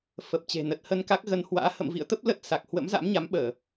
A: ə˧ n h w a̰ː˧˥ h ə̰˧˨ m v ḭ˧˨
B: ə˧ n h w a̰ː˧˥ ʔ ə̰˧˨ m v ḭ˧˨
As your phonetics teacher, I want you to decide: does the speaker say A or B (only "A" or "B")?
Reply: A